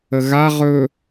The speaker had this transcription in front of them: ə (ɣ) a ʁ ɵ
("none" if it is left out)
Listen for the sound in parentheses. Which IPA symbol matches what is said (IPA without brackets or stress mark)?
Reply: ɣ